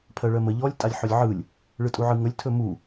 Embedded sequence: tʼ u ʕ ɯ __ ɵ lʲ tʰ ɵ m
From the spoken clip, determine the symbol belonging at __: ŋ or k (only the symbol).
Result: ŋ